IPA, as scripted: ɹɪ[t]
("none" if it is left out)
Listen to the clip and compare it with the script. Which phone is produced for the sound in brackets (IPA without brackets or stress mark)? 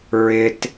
t